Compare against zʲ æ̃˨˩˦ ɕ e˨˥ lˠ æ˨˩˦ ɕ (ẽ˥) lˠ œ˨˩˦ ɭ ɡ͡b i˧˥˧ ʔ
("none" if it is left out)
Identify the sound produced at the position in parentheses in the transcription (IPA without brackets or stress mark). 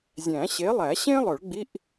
ẽ˥